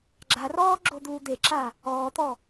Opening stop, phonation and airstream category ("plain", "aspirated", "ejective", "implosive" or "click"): click